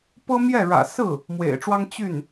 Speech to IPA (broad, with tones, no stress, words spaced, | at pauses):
pɤ˥ mjɛ˥˩ɻä̰˨˩ sɹ̩˥˩ | mwḛ˨˩ɪ̯ʈ͡ʂwɑ˥ŋ t͡ɕy˥˩n